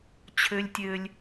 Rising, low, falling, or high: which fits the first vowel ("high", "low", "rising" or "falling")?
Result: high